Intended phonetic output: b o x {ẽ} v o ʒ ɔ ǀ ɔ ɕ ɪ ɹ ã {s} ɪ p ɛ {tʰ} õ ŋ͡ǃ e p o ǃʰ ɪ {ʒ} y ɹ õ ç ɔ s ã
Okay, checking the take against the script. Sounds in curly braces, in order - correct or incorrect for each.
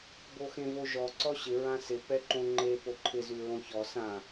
correct, correct, incorrect, incorrect

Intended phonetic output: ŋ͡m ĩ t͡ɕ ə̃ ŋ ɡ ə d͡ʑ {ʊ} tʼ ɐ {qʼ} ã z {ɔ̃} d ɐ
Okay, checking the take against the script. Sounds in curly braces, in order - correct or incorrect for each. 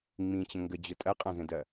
correct, correct, incorrect

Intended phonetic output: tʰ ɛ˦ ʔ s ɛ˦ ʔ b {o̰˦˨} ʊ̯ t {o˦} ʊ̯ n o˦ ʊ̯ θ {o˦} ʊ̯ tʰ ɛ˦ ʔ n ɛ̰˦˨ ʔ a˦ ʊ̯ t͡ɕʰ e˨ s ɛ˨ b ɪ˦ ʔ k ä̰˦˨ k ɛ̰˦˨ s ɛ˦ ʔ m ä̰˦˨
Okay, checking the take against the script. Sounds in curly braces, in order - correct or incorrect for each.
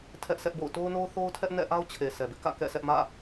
correct, correct, correct

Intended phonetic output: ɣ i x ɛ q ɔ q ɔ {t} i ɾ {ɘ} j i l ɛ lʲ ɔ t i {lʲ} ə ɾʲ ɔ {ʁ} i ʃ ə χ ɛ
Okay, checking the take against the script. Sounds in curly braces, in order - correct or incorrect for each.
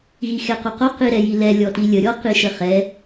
incorrect, incorrect, correct, incorrect

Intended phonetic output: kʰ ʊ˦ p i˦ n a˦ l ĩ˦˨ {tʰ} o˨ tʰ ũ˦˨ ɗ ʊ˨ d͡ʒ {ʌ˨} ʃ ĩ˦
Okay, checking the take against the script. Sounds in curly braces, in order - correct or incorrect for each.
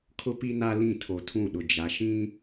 correct, incorrect

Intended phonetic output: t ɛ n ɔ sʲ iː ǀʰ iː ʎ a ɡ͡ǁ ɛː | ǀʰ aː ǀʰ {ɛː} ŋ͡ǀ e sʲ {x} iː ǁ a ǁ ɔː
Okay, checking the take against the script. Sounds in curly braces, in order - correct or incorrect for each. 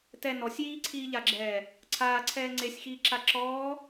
correct, correct

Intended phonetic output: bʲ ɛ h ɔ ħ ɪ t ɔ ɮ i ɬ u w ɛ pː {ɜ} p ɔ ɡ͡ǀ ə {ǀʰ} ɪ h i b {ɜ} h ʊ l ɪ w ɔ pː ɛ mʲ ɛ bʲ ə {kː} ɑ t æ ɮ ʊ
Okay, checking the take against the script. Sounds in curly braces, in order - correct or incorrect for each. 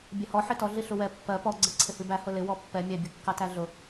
correct, correct, incorrect, correct

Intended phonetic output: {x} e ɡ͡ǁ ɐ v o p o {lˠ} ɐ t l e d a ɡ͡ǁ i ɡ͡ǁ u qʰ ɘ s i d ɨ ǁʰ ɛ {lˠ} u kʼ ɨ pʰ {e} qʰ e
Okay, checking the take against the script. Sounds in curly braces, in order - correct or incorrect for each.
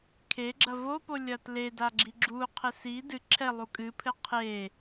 incorrect, incorrect, correct, incorrect

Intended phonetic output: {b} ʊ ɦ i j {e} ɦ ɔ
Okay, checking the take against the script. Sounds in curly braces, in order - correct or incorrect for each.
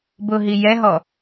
correct, incorrect

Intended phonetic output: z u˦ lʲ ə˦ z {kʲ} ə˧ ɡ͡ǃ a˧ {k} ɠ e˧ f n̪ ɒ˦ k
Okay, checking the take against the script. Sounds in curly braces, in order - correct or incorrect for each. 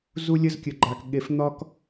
correct, correct

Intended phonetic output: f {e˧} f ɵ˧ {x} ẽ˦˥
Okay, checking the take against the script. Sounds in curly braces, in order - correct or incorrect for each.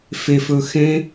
correct, correct

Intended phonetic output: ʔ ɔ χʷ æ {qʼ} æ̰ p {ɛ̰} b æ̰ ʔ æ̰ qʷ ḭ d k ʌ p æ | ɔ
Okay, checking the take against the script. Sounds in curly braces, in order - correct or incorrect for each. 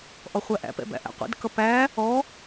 incorrect, correct

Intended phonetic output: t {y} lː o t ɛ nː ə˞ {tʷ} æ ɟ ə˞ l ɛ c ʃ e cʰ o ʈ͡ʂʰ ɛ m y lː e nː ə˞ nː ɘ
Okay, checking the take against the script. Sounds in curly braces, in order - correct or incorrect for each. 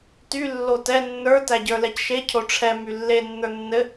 correct, incorrect

